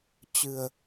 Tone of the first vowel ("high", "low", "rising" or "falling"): low